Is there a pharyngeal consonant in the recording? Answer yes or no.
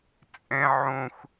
yes